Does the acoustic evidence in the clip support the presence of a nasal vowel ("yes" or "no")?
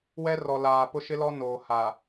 no